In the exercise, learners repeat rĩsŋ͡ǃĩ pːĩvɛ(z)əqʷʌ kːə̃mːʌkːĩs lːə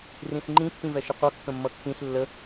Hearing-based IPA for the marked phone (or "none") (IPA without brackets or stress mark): ʃ